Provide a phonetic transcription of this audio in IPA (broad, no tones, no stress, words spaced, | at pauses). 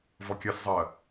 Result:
vɔkʲɜszˤɜ